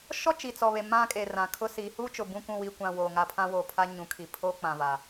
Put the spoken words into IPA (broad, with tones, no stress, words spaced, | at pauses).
ʃɔ˦t͡ʃi˨t͡sɔ˨βe˨ mã˦kʼe˨rã˨ kʰʊ˦si˨˦ huː˦t͡ʃʊ˨ bũ˦kʷũ˦˨wi˦˨ kʷã˦˨woː˨ ŋa˦˨pʰã˦woː˨ pʰa˦ ɲũ˨ kʰi˨pʰo˦k͡pã˨va˨